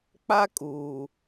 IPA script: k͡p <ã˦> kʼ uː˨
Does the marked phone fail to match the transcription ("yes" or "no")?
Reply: yes